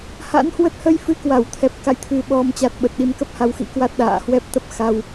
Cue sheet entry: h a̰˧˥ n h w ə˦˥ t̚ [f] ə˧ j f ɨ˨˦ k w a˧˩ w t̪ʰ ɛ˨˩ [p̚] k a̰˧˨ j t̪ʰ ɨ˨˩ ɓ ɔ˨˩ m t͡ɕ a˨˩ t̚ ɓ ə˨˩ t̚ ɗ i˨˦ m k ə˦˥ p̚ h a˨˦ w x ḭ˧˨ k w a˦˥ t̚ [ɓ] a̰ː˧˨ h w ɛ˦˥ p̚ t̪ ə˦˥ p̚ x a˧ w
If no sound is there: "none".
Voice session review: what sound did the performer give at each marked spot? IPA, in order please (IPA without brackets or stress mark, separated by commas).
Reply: h, p̚, ɗ